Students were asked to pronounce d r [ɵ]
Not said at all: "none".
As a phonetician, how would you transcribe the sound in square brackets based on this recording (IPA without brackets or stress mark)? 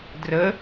ə